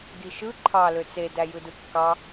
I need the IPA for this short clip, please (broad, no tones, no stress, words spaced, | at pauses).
ɡiʃɯ ǃʰɑ løt͡se dæjɯdɯkːɑ